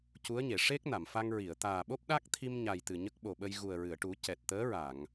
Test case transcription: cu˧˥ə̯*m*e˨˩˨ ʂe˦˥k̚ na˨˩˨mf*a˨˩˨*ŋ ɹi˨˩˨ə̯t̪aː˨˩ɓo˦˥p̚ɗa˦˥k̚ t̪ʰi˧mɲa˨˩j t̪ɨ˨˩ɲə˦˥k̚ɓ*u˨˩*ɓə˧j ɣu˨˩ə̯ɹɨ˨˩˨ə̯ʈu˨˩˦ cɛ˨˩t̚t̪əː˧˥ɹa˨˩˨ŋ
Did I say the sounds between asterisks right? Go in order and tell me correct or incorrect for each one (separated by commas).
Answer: incorrect, incorrect, incorrect